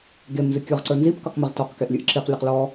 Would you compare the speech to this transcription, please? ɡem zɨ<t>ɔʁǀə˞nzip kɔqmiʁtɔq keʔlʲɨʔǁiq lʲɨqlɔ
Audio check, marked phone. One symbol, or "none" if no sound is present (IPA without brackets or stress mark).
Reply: kʲ